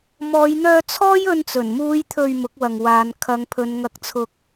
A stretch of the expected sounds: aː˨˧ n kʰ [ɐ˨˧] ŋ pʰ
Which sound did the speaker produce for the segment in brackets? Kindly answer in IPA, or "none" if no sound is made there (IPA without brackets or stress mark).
ɐ˨˧